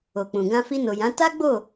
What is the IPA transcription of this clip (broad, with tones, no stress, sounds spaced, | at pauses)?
o˨ k͡p ũ˨ ɡ ã˧ f i˧ n o˨ j ã˨˦ t a˦ ɡ͡b o˦˨